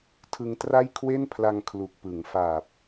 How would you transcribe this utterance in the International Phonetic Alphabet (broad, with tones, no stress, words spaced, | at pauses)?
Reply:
tʰɯ˧ŋ tra˥˩j kʰwe˥˩npʰla˧ŋ kʰlu˨˩k̚pɯ˩˦ŋ faː˨˩p̚